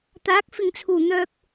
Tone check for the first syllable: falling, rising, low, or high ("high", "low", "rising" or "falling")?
rising